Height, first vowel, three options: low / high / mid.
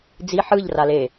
high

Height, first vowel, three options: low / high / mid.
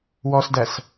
mid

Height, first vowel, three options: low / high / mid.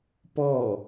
mid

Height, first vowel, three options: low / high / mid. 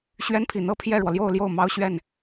mid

